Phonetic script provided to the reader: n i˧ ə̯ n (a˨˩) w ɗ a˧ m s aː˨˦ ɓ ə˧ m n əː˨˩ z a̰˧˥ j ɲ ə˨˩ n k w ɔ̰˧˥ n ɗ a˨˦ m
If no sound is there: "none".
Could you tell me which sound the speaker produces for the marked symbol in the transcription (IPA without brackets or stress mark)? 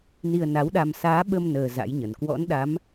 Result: a˨˦